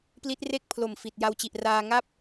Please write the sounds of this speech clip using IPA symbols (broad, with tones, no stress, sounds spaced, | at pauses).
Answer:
p l i˦˥ t̚ r e˥˩ k̚ pʰ l o˨˩ m f i˨˩ t̚ j a˧ w t͡ɕ i˨˩ ʔ r aː˧ ŋ a˥˩ p̚